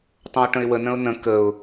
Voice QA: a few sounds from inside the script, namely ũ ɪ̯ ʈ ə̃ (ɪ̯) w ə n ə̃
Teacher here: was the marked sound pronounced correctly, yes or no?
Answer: yes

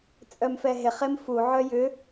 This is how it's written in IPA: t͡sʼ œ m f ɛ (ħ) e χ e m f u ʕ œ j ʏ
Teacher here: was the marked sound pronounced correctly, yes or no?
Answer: no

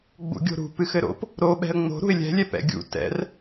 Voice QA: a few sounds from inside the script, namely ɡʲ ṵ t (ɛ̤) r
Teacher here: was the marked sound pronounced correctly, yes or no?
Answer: no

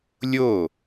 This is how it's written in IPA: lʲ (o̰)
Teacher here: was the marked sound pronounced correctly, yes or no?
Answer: no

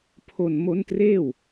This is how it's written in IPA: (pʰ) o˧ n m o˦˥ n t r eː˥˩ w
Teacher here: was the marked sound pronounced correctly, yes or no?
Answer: yes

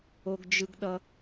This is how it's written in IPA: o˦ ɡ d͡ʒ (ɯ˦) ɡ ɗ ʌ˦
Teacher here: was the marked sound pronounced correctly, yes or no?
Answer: yes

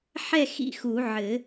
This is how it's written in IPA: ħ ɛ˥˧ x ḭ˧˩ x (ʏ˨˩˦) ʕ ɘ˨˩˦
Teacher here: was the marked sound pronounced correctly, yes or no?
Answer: no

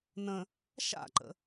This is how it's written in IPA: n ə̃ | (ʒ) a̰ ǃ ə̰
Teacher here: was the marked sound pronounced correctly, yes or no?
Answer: no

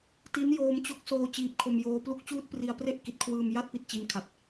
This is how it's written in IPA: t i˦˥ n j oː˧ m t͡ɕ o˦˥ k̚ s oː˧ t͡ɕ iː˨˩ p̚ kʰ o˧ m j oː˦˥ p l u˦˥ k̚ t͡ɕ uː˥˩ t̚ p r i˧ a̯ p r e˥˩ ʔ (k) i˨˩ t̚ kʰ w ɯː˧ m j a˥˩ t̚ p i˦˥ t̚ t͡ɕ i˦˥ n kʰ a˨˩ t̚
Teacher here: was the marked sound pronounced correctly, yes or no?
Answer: yes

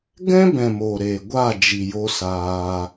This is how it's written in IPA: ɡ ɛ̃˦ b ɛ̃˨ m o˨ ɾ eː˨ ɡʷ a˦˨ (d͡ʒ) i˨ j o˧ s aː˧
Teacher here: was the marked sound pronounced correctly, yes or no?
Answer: yes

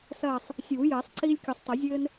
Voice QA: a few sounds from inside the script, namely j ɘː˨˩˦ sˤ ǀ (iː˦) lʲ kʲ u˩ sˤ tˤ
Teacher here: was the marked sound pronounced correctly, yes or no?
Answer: yes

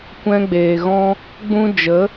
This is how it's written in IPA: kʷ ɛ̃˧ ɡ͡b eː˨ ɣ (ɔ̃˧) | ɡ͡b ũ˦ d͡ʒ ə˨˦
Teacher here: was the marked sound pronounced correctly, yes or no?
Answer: yes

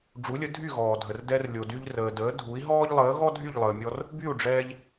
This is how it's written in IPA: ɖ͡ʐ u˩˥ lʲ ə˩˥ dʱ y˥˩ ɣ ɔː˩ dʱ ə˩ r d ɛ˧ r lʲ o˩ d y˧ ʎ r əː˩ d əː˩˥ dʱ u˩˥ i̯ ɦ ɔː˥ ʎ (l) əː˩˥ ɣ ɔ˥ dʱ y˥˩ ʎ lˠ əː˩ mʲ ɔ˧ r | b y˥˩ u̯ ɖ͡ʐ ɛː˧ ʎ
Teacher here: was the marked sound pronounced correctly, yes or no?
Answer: no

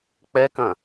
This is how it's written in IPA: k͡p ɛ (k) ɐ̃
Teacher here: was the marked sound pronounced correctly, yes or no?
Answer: yes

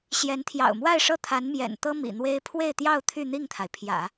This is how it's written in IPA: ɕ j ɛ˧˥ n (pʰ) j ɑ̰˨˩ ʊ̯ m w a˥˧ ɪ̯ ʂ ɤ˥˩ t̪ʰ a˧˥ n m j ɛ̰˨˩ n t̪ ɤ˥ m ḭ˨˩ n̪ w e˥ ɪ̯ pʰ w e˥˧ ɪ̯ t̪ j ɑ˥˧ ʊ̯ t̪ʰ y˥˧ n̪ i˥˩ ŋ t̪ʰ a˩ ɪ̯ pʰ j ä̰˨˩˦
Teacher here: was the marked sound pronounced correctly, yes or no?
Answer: no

